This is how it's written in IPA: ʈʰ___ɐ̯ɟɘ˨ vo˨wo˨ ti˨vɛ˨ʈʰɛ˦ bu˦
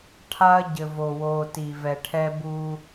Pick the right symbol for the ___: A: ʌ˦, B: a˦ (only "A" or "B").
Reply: B